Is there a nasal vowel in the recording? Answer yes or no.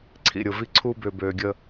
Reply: no